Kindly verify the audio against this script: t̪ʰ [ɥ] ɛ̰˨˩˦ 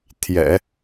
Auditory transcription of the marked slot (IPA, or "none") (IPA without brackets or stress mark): j